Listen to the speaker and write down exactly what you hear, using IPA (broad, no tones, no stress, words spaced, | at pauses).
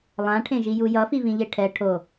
lˠãʈʰẽʒiju jʌfivĩʎe ʈʰɛ ʈʰo